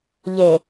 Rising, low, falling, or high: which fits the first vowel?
low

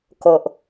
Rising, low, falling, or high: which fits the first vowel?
low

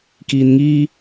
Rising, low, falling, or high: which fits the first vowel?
low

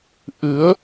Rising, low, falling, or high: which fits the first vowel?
rising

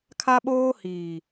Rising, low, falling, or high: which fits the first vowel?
high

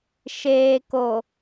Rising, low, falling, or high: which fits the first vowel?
low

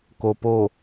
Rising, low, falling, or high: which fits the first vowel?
low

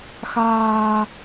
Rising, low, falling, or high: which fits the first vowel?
low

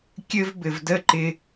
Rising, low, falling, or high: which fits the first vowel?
high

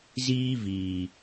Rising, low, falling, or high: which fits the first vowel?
high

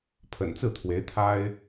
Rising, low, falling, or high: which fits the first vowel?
low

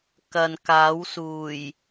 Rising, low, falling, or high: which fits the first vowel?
low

